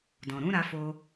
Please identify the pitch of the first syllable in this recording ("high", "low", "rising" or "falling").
low